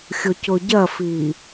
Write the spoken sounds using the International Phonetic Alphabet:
xʲ ʊ c ʊ ɟ ɐ f i

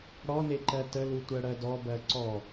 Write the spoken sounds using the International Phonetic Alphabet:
ɽ ɔ n e ǃ ɜ t ə l u tʷ ɜ ɽ ɜ d ɔ b ɜ ǀ ɔ

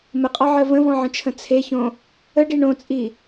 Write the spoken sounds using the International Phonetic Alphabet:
m ə qʼ ɒ ʕ ɜ v ə̃ v ɔ̃ ʕ ə̃ t͡ʃʰ ə̃ t͡sʰ e ç õ | ə ɖ i ɳ õ t͡sʼ i

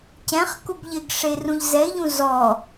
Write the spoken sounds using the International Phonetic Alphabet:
c ɛ̃ χ k u b ʎ ɪ ɡ ʂ e r ũ ʎ z ɛ ɪ̯ ʎ ũ z ɔ

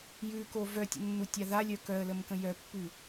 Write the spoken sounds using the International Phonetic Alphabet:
j ʉ k o v œ tʲ ə̰ nː u tʲ a ð a lʲ œ k œ ə̯ l ə m k ə̃ j œ pː ʉ

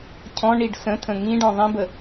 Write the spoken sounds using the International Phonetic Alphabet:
cʰ ɔ̃ ɳ i ɖ s ə̃ tʰ ə̃ ŋ ĩ ɖ ɔ̃ ðˤ ĩ b ə

